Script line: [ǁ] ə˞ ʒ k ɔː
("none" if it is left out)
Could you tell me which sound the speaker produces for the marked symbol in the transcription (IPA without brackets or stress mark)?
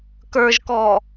k